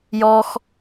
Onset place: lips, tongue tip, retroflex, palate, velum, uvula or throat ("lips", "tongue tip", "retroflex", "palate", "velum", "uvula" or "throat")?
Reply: palate